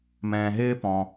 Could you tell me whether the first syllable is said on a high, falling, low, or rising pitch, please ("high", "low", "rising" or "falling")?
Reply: low